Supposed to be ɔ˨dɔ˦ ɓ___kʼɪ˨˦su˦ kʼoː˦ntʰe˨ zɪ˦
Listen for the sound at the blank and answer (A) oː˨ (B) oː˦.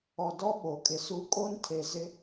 A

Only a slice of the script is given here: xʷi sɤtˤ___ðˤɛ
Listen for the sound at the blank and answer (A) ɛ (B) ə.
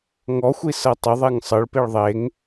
B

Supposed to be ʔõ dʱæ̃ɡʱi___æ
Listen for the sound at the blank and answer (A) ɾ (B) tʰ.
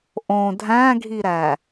A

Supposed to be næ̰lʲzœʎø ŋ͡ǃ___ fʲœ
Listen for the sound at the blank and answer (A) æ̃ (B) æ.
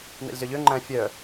A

